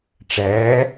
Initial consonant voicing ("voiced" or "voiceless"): voiceless